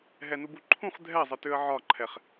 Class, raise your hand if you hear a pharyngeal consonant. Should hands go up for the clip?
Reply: yes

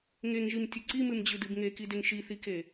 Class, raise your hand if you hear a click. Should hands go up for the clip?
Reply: yes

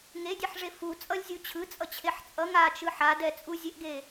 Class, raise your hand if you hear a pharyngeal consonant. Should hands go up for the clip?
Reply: yes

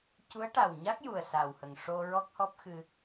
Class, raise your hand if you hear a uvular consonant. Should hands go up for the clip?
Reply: no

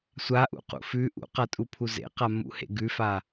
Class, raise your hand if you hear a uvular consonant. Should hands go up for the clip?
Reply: yes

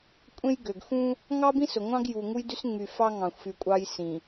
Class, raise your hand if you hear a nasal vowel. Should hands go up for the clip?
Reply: yes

